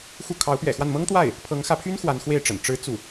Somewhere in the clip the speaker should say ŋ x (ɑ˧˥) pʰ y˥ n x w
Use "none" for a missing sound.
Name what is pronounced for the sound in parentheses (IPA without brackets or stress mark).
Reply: ä˧˥